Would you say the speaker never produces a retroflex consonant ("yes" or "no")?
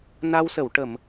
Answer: no